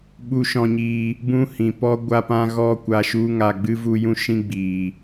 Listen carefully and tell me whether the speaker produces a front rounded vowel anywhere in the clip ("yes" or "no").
no